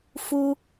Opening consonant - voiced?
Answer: no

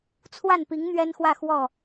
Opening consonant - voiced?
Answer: no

